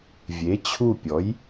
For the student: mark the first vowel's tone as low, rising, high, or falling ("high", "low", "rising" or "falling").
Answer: rising